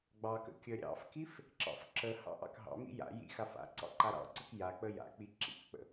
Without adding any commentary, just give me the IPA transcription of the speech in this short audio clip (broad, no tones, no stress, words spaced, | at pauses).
ɡ͡bɑkə̰ kʲə ɾʲɑ̰fkif | ǁɑ̰fǁəhɑ̰ ʔɑ̰kɦɑ̰mḭ ja̰ jḭxaf a̰ ǀɑ̰ǃaɾɑ̰ǀək jak͡pə ja̰k͡pi ǁḭkk͡pə̰